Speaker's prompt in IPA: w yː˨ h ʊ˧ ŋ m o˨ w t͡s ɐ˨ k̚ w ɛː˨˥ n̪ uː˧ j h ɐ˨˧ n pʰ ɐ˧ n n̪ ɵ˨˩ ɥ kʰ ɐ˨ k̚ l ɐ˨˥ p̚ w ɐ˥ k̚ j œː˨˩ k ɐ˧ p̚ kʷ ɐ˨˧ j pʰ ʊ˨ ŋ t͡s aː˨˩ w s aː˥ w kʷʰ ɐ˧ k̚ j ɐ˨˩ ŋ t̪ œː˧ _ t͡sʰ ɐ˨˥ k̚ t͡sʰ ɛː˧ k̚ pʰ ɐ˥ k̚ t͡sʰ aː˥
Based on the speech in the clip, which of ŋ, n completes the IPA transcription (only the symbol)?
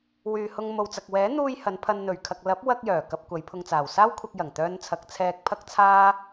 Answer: n